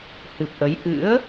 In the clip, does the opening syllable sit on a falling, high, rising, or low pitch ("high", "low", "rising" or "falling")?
low